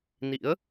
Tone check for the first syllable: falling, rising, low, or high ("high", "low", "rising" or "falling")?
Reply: rising